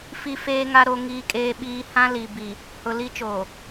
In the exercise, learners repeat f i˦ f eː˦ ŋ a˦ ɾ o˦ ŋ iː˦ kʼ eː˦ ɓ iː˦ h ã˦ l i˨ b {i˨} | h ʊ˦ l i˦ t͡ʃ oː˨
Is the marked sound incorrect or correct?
correct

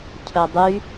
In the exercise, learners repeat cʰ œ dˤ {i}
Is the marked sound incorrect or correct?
incorrect: y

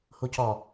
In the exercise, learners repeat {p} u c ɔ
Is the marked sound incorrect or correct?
incorrect: h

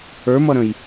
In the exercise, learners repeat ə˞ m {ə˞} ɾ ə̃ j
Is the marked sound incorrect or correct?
incorrect: ʌ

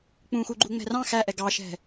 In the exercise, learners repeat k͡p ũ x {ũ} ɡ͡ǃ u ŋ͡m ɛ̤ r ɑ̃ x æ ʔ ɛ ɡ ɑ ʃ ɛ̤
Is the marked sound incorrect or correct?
incorrect: u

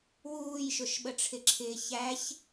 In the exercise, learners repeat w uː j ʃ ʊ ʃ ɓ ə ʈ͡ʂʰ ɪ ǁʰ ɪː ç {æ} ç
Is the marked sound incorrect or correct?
correct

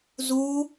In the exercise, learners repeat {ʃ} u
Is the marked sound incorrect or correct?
incorrect: z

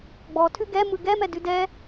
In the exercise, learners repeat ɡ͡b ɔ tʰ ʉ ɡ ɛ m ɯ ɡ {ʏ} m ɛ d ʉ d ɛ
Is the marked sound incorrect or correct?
incorrect: ɛ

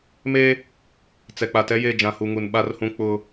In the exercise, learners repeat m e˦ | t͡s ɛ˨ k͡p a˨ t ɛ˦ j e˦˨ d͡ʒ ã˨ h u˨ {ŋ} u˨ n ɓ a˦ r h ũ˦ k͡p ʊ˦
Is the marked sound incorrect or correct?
correct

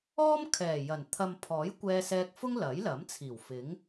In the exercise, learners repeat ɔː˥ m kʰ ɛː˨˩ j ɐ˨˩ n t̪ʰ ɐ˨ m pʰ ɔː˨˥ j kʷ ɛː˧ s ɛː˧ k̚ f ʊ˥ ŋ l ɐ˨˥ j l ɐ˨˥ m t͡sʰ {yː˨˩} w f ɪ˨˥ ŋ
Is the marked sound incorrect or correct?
incorrect: iː˨˩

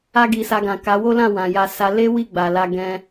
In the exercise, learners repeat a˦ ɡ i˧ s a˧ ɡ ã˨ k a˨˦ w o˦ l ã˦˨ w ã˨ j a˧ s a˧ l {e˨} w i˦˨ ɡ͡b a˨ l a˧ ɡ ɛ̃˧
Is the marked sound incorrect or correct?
incorrect: e˦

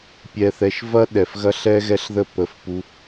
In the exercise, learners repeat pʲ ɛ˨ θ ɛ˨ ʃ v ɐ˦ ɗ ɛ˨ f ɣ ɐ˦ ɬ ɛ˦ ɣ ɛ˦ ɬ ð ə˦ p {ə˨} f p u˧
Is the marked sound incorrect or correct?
incorrect: ə˨˦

